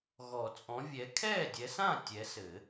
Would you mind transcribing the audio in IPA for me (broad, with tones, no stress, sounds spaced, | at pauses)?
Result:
ɣ ɔ˨˩˦ t͡sʼ ɔ̃˨˦ vʲ ɛ˨˦ kʰ ɛː˥˨ dʲ ɛ˨˦ s ã˥˨ tʲ ɛ˨˦ s ɘ˨˩˦